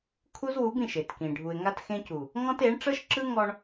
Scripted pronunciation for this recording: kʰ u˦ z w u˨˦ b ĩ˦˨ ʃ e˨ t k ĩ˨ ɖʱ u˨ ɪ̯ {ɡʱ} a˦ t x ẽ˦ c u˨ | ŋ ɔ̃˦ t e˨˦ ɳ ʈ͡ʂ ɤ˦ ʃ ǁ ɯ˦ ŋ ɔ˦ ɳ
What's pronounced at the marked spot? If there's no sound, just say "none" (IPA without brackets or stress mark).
ŋ